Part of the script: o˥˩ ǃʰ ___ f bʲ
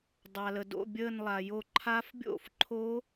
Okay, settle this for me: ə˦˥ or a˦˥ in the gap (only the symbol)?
a˦˥